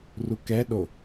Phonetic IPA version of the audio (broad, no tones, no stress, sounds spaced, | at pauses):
r u k ɛ ɗ o